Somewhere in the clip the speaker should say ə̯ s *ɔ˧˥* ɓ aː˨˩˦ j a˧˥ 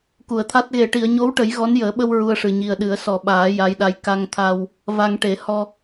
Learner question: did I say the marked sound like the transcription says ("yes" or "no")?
no